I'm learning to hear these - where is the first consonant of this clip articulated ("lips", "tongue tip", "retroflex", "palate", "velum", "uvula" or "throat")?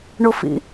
retroflex